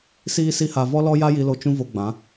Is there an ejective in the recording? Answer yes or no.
no